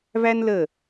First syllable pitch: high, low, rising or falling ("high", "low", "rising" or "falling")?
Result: high